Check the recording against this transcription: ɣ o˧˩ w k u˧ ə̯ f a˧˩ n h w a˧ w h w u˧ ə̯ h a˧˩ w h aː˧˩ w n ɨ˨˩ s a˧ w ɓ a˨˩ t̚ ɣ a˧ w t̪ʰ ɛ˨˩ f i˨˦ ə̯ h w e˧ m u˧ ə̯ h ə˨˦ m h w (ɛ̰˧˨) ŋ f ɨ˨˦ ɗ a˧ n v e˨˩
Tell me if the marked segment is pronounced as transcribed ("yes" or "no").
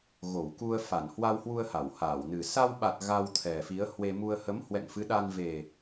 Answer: yes